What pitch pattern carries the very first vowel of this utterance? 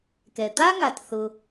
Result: low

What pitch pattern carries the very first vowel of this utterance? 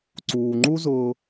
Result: low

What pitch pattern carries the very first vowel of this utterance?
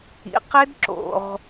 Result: rising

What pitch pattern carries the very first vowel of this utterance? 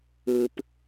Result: low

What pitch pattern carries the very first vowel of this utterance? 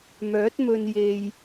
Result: rising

